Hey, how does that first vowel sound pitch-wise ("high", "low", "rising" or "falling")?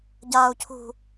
high